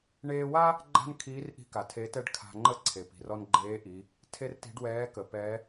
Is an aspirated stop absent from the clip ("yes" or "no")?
no